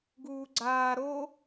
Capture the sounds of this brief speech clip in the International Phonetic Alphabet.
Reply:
ɡ uː ɡ͡ǀ aː ɾ o

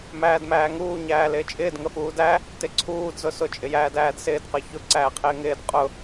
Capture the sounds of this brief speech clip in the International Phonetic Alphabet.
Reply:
m æː d m æː ŋ uː ɲ æː l ɪː t͡ʃʼ ɪː d ŋ ə f uː d æ | t ɪ ǀʰ uː d z ʊ s ʊ t͡ʃʼ ɪ j æː d æː d s ɪː d q ə ç ʊ ǀ æː qʰ ɪː ŋ ɪː d qʼ ʊ

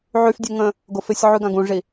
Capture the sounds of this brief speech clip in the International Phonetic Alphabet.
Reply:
ʕ y f dʲ e ŋ ə̃ | ɡ ʊ f ɪ sʲ ʕ y ɡ ã ɡ ũ ʐ i

